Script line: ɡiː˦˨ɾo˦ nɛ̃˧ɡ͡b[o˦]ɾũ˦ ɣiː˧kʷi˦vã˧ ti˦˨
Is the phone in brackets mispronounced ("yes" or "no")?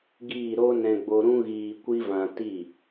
yes